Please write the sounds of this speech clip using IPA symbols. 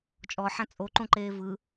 t͡ʃʼɔħã t͡sʼoǃũǃeː vɯ

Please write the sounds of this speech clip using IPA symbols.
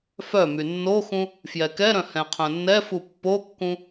fœmy nːoxũ | fjɛkɛɾœ̃ hɛ̃qʰœ̃nːɛfu pːokːũ

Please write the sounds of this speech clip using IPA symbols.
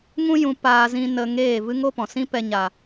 ŋũ˦jũ˧ paː˧zĩ˧ nə˧ŋeː˦˨ vɨ˦ŋo˦pɔ̃˨ sĩ˦pɛ˧ ɲa˨

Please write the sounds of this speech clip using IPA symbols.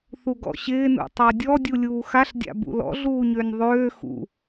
θuɡɔ̰ɕɪː nṵtˤadʲɔ dʲulʲuːxaɬdʲa̰ bṵlɔ̰ɮuːɲønʲ ðˤøː xṵ

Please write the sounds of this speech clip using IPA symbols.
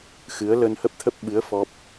xɨ˨˦ə̯ lə˧nhə˦˥p̚t̪ʰə˦˥p̚ ɓɨ˨˦ə̯ fɔ˦˥p̚

